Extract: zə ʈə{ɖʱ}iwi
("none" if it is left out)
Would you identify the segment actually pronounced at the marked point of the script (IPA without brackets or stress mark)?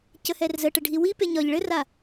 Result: ɖʱ